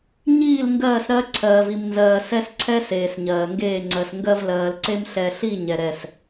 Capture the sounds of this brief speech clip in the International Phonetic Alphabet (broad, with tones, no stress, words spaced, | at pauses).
ɲiː˦˨l ŋɡɜː˦˨sɾɜ˦ ǀʰɜː˨vi˨mnzɜː˨ sɛ˦sǀʰɛ˦ seː˨sɲɜː˨ŋɡeː˦˨ŋ͡ǀɜ˨s ŋɡɜ˦vlɜː˨lǀe˦m ɬɛ˨ɬi˦˨ ɲɛ˨ɾɛ˦˨s